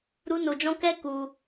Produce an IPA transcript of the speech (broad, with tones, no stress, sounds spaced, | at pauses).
ɾ u˦ n o˧ d͡ʒ ɔ̃˦ k ɛ˦ k u˧